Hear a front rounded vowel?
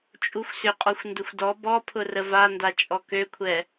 yes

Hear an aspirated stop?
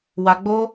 no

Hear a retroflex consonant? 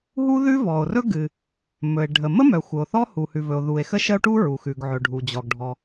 yes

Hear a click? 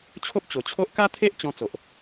no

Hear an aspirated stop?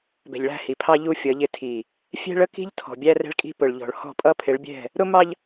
yes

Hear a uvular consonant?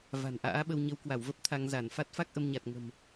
no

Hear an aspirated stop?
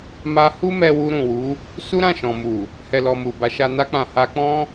no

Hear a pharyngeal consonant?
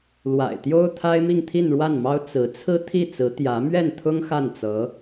no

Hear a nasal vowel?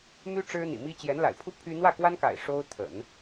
no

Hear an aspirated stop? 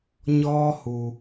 no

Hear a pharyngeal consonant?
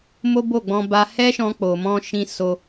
no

